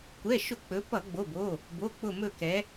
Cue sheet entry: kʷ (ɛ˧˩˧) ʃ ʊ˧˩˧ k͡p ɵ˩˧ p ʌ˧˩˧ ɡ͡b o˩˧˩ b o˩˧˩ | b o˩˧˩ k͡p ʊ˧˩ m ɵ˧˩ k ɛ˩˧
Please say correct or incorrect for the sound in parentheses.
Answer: incorrect